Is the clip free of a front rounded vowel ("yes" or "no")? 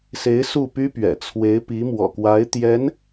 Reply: no